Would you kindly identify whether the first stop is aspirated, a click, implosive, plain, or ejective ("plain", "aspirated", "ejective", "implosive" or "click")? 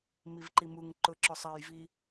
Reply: click